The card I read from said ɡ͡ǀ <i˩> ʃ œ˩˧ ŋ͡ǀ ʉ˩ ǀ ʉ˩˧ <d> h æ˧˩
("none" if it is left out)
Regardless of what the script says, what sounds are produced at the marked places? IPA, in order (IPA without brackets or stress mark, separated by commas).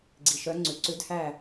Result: i˩, d